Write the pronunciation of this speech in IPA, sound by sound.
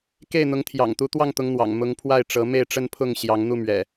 k e˥˨ ɪ̯ n̪ ʊ˨˦ ŋ t̪ʰ j ɑ̰˨˩ ŋ t̪ u˨˦ t̪ w ɑ˥˨ ŋ t̪ ʊ˨˦ ŋ n̪ w ɑ̰˨˩ ŋ m ʊ˨˦ ŋ pʰ w a˥˨ ɪ̯ ʈ͡ʂ ɤ˨˦ m e˥˨ ɪ̯ ʈ͡ʂ ə˦ n pʰ ʊ˥˨ ŋ ɕ j ɑ˨˦ ŋ n̪ u˥˨ m ɥ ɛ̰˨˩

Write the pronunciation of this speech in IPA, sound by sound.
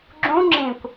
ɡ͡ǁ ũ ŋ͡ǁ ĩ kʷ

